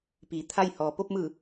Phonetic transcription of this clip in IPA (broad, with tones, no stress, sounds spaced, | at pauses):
p iː˩˧ t̪ʰ a˥˨ j h ɔː˩ p o˥˨ p̚ m ɯː˧˩